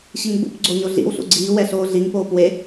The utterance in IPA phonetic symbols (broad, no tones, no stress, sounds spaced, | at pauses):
ɕ i ŋ ɡ͡b ṵ p ɡ͡ǀ o ɲ o ɮ ḭ w ɬ ṵ ɡ͡ǀ iː w ɛ ɬ oː ɮ i ŋ p oː p w e